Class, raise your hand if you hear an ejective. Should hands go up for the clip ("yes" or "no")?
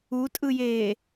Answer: yes